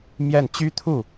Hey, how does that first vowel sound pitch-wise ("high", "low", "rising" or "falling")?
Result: falling